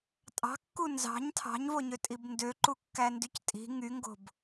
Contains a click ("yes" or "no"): yes